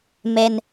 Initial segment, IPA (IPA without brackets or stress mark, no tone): m